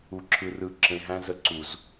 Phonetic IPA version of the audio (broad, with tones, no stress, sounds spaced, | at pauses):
u˧ ǁʰ ɯ˧ r ɯ˧ ǁ ẽ˧ ɦ æ̃˦ z ə˧ ǀ u˨ z